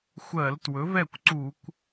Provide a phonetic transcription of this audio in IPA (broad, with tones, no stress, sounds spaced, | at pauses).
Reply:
xʷ ɜ˧˩˧ l t w ɵ˩˥ v ɛ˥˩ kʷ ǀ u˧˩˧ kʷ